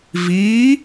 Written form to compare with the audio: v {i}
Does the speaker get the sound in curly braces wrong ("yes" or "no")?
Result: yes